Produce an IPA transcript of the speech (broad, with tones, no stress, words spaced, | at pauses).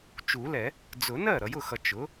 t͡ʃu˨˩˦lɛ˨˩˦ | d͡zʊ˨˩˦nɜ˥˩ ɾʌ˨jʊ˥˩xʌ˨ t͡ʃʊ˩˥